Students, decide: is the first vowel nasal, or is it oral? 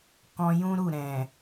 nasal